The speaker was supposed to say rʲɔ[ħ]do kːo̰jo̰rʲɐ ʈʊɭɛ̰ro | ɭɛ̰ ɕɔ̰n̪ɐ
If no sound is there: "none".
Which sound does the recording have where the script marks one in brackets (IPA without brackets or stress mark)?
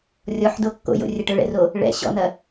ħ